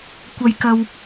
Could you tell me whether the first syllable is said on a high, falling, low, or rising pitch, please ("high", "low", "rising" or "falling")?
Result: low